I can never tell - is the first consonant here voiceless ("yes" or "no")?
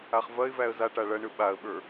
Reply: yes